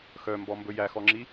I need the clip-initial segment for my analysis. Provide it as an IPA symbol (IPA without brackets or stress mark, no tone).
x